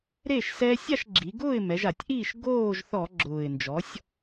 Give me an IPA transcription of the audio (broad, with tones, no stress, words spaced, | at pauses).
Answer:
ɾe˥˨ʃsɛ˦ sʲa˥˨ʃɡ͡ǁi˩˧ɡʊː˥˨ɪ̯mɛ˩˧ʒ a˧˩˧tʲʔiː˥˨ʃ ɡoː˥˨ʒθɔ˧˩˧ ɡ͡ǁʊː˨˩ɪ̯ nd͡ʒɔ˩˥sʲ